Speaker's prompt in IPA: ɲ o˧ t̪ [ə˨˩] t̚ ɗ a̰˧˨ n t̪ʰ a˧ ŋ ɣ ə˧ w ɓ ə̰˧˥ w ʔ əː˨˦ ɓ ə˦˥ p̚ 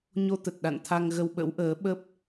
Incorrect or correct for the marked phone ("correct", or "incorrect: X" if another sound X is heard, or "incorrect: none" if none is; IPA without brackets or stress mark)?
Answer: correct